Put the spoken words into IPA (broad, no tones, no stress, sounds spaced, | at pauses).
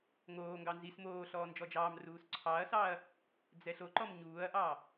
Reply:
ŋ oː ŋ ɡ ɑ n z i s m oː ɬ ɔː n d͡ʒ ɔ d͡ʒ ɑː m r uː s ǀʰ ɑ ɐ̯ s ɑ ɐ̯ | d͡z ɛ ɬ o ǃ ɔ m ɲ uː ɐ̯ ʔ ɑ